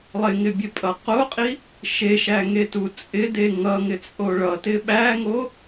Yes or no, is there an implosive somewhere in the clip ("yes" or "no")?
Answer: yes